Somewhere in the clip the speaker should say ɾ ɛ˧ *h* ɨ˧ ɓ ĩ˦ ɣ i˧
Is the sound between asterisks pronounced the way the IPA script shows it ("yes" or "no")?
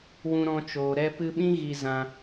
no